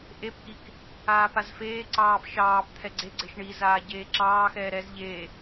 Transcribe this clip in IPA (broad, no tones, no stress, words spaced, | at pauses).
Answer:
ʔepʔik | aːpazfeːǀɑːp ʃɑːpt̪ʰɛ ɡ͡ǀeɡ͡ǀeʃ ɳizaː ɟeːǁɑːxɛː ɾɛz ʎe